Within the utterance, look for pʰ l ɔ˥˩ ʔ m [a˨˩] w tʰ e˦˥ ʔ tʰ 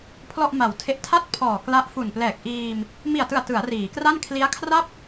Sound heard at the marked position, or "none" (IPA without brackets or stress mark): a˨˩